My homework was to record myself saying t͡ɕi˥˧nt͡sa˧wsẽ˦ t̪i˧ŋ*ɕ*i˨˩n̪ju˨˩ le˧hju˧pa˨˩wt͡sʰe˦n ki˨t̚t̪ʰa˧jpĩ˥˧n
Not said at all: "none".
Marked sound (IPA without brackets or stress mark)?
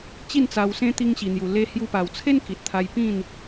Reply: ɕ